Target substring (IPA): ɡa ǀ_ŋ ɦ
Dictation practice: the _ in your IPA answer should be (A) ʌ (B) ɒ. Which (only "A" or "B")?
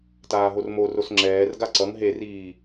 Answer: A